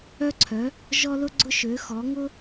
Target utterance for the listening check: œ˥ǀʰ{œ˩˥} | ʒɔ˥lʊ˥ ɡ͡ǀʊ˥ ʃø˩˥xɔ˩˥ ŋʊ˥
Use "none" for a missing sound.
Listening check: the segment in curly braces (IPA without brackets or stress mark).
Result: œ˩˥